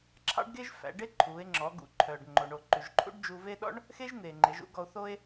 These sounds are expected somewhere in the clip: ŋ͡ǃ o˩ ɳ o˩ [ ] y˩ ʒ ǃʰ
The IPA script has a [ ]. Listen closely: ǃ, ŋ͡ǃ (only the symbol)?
ǃ